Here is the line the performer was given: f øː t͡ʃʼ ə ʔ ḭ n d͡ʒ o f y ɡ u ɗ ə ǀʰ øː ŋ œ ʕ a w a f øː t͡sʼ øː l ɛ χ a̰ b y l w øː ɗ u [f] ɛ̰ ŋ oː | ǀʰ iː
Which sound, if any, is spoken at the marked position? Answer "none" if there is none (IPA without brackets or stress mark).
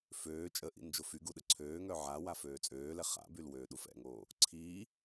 f